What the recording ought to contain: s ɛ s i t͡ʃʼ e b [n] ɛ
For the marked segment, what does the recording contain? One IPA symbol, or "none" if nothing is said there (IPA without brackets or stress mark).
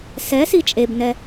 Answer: n